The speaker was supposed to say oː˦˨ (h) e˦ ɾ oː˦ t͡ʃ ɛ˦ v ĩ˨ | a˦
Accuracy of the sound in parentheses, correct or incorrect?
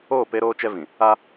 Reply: incorrect